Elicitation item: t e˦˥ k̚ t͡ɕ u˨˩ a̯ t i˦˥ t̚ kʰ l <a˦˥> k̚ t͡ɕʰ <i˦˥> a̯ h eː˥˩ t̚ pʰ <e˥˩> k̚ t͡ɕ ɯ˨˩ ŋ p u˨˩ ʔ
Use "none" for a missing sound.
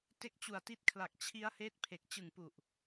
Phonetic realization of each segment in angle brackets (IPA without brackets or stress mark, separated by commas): a˨˩, i˦˥, e˨˩